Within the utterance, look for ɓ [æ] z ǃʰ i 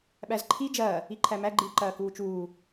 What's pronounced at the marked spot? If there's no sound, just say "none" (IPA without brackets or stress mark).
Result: æ